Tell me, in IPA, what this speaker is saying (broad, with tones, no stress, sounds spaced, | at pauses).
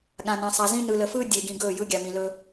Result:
ɠ ã˨ n ã˨ sˤ a˨ z ĩ˦ n ɯ˨ l ə˨ f ɯː˦ dʲ e˨ ɡ ĩ˨ ɡ ɵː˦˨ j ɯ˦ ɡʲ a˨ m ĩ˨ l ɵː˦